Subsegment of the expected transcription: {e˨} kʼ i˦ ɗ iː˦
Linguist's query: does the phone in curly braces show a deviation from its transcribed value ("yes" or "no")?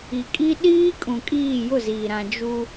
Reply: yes